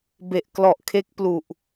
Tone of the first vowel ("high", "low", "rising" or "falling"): low